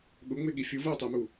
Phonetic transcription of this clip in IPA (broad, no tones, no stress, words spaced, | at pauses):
ɠʊŋ͡mɪɠi fʲuvoːtˤɪːmu